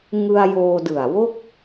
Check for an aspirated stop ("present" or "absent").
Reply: absent